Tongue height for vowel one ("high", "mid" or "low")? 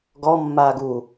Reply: mid